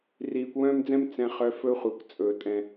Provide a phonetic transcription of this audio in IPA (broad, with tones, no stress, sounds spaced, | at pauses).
r iː˨ kʷ w œ̃ː˦ m d͡z ɛ̃˦ m t͡s ɛ̃˨ χ œ˨ f ɵ˦ χʷ ɛ˨ kʷ t͡sʼ ɵ˨ tʼ ɛ̃˦